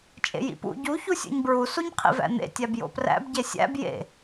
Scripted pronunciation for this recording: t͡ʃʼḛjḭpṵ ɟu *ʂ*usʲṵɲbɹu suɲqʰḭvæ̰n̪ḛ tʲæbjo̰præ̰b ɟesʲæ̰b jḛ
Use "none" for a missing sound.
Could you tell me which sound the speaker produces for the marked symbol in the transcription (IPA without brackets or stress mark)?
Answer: ç